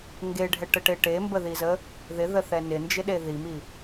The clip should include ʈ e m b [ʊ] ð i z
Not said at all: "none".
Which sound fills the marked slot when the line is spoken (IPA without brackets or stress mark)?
ə